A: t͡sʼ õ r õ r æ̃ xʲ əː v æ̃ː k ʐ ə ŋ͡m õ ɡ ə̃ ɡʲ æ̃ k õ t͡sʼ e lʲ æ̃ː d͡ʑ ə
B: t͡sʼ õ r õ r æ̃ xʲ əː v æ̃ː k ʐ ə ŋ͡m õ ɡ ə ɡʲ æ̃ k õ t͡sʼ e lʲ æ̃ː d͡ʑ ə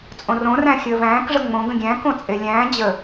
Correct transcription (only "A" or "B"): A